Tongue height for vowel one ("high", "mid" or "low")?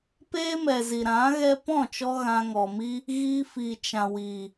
mid